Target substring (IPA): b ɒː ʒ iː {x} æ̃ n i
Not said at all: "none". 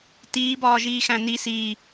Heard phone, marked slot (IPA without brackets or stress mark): x